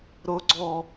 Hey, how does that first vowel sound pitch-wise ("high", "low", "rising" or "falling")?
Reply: high